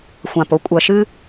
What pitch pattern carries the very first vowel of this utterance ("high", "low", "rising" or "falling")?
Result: low